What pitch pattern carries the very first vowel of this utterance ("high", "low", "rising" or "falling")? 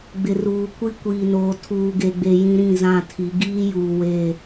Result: low